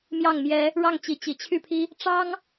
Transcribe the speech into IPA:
m j ɑ˥˩ ŋ m j ɛ˥ | ɻ ɑ˥˩ ŋ t͡ɕ i˧˥ t͡ɕ i˨˩ t͡ɕʰ y˥˩ pʰ i˥ | ʈ͡ʂ ɑ˥ ŋ

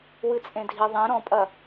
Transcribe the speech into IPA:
w ɨ t͡sʼ ẽ dʱ i ðˤ ẽ ɾ ɔ̃ pʼ ɐ

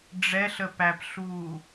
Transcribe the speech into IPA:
ɖ͡ʐ ɛ ɬ ə p æ p ɬ uː

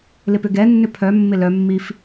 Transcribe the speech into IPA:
l ɪ p ʏ ɡ ɛ nː ʏ pʰ œ mː ɪ l œ mː i f

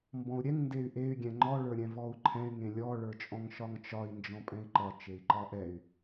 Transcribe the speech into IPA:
m b ɔ̃ u̯ ɾʲ ɛ ŋ n d e y̯ ʔ e y̯ ɡʲ ɛ̃ ŋ͡ǃ ɔ ɭ ə˞ ɾʲ ɛ̃ v ɔ u̯ ǃʰ ɛ̃ y̯ ŋ ẽ lʲ ɔ ɭ ə˞ t͡ʃʼ ɔ̃ ŋ ʃ ɒ ŋ t͡ʃ ɒ i̯ n d͡ʒ ɔ̃ pʼ ɛ̃ i̯ ǃ ɒ t͡ʃ e i̯ ǃ ɒ ʔ ɛ y̯

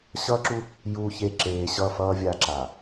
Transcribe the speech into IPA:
ɕ ʌː˦ ǁ u˦ | j uː˨ ç e˨ ǁ eː˨ ɕ ʌ˦˨ f ʌː˨ vʲ a˨ ǁ a˨

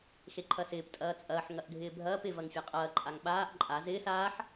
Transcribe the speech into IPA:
x e ǃʰ ɐ s ɪː p tʼ ɐː t͡sʼ ɐː ħ ŋ ɐ ʔ ɡʱ ɪː bʱ ɐː p ɪ v ɐ ŋ fʲ a qʼ ɐː ǃʼ a ŋ ɓ aː ʔ ǃʼ a z ɪː s aː ħ

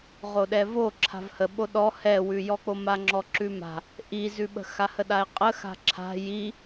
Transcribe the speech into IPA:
ʁ o ɗ ɛ v o ǁʰ a̤ v h ə ɓ o ɗ ɔ h ɛ w ʉ j ɔ k͡p o m a ŋ͡ǁ ɔ ǁ ʉ m a̤ | ʔ i z ʉ ɓ ə̤ x a h ə ɗ a e̯ qʼ ə x a̤ ǁʰ a̤ j i

